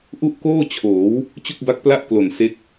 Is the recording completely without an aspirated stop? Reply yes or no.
no